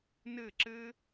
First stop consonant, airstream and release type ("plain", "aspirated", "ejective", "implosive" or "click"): click